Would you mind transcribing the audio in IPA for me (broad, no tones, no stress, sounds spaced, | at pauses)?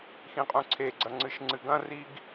x ĩ qʼ ũ ǀʰ e ɡ͡ǀ ɐ ŋ͡ǀ ɨ ʃ ŋ͡ǀ ɨ ɡ ɐ̃ r i ɡ